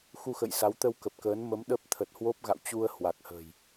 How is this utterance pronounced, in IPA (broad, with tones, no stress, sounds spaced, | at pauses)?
x u˧ x ə̰˧˨ j s a˨˦ w t̪ ə˧ w k ə˨˩ p̚ k əː˨˦ n m ə˨˦ m ɗ ə˦˥ p̚ t̪ʰ ə˨˩ t̚ h w o˦˥ p̚ ɣ a̰˧˨ w t͡ɕ u˧ ə̯ h w a˨˩ k̚ h ə̤˨˩ j